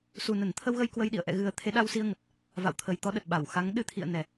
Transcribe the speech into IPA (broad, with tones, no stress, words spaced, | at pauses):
su˨˩nə˧˩n t̪ʰə˧wɣə˧j kwə˧jɗḭ˧˨ə̯ ʔɛ̰˧˨ɣɨ˨˩ə̯ t̪ʰe˨˦ɗa˧wsi˧ə̯ŋə˨˩t̚ | va̰˧˨wt̪ʰə˨˩jt̪ɔ˨˦ɗə˨˩t̚ ɓa˧˩wxa˨˦ŋ ɗɨ˨˦t̪ʰḭ˧˨ə̯ nɛ˨˩